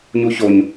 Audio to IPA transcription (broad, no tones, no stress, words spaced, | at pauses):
ɲuçoɲ